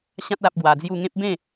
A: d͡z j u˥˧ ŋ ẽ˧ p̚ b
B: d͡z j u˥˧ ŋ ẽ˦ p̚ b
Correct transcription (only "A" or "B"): B